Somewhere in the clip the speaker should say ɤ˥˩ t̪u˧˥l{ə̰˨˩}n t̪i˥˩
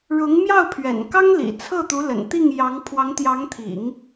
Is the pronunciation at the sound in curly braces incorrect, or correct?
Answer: correct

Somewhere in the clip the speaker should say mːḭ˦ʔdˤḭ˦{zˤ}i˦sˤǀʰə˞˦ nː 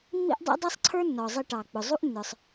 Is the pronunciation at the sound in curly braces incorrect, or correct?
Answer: incorrect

